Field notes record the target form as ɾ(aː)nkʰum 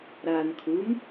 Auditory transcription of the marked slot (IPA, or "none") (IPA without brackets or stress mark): aː